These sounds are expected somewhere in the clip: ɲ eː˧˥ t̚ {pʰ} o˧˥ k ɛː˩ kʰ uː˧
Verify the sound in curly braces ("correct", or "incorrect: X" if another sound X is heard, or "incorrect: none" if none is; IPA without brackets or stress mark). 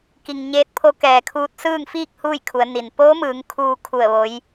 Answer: correct